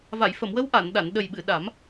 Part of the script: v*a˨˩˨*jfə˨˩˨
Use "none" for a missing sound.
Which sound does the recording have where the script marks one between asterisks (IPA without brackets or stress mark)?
a˨˩˨